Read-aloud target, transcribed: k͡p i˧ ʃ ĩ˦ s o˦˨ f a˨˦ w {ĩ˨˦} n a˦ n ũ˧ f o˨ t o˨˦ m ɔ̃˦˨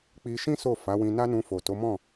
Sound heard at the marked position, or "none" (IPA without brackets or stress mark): ĩ˧